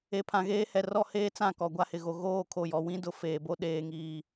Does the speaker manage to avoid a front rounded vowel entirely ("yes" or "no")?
yes